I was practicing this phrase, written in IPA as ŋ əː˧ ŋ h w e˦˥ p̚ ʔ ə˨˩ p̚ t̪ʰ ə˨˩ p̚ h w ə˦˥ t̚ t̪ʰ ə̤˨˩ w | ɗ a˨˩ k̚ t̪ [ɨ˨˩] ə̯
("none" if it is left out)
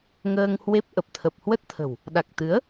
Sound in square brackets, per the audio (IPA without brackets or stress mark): ɨ˨˦